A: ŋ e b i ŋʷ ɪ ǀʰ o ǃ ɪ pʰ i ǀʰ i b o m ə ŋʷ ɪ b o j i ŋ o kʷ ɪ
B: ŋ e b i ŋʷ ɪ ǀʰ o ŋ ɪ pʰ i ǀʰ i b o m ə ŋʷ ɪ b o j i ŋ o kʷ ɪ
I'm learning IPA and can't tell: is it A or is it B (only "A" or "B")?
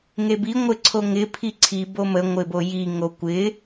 B